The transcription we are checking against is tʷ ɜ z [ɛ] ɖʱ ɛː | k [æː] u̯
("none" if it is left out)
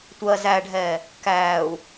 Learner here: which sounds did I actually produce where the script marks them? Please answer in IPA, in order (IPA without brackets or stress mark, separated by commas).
æ, æː